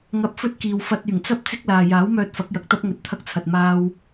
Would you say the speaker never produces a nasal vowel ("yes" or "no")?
yes